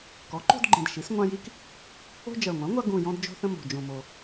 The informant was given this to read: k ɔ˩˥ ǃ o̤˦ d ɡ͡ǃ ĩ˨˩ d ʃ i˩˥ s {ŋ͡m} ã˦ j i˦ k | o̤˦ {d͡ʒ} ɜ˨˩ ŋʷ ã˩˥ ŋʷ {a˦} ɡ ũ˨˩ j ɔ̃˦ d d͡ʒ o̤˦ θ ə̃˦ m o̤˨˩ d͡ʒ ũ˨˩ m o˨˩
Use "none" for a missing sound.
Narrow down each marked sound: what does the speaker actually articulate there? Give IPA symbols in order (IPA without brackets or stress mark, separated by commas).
ŋʷ, d͡ʒ, a˦